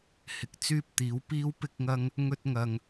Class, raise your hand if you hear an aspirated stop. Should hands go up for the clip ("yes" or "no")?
no